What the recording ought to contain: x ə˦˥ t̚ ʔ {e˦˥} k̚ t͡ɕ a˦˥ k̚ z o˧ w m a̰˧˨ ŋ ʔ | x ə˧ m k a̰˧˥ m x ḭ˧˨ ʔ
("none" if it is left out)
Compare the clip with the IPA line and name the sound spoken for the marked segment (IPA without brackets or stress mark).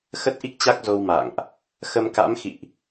i˦˥